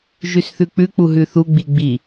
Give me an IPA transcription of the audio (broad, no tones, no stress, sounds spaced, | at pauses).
ʒ ʉ s θ ʉ k͡p ʉ k͡p u ɦ ʉ θ u ɡ͡b i ɡ͡b i